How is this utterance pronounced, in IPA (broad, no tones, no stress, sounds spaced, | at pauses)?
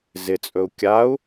z ɪ t͡sʼ ɵ u̯ kʲ a u̯